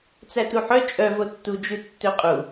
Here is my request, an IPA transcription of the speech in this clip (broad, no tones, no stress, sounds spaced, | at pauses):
t͡s æ t u ħ œ t͡ʃʼ œ v o tː u d͡ʒ ʉ tː ø qʼ u